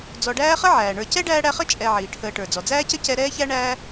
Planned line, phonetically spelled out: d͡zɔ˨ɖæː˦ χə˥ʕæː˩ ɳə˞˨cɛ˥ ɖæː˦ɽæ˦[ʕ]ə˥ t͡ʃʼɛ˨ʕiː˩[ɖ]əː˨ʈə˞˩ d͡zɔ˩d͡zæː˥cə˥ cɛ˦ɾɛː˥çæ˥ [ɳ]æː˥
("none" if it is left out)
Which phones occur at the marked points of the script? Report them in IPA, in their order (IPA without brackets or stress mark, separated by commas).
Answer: χ, ʈʰ, ɳ